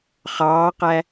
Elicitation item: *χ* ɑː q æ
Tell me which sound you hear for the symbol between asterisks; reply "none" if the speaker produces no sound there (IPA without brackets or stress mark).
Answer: χ